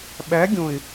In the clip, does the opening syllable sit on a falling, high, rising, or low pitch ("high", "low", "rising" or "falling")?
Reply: rising